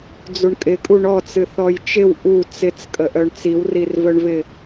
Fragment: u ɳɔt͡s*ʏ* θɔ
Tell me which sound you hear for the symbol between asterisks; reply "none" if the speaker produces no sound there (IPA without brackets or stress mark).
ɨ